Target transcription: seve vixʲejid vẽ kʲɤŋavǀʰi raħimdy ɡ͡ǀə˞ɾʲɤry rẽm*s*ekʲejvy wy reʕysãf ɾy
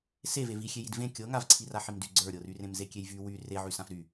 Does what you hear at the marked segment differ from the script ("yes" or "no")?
yes